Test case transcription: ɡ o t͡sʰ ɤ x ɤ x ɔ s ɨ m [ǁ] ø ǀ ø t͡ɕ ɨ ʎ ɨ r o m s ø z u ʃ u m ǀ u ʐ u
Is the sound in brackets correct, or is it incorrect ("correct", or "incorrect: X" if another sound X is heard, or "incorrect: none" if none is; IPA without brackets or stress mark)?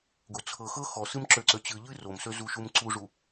correct